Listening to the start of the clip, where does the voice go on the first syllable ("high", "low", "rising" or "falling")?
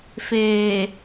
low